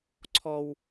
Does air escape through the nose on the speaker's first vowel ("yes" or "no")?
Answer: no